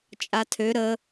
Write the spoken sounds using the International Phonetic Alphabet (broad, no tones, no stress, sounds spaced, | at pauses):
t͡ʃʼ a tʰ ø ɾ ə